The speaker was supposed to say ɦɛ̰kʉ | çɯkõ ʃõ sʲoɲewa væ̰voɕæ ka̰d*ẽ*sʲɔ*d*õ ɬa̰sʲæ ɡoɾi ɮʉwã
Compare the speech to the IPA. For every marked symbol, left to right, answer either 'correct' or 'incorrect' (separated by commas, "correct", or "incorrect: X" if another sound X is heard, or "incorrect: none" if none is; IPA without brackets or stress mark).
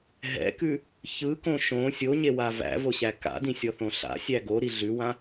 incorrect: ĩ, incorrect: θ